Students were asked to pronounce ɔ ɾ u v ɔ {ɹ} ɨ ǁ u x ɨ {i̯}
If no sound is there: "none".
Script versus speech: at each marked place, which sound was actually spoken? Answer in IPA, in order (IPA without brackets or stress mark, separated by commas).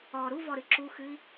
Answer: ɾ, i̯